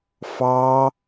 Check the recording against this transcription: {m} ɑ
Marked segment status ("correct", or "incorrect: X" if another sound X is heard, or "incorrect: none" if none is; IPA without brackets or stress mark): incorrect: f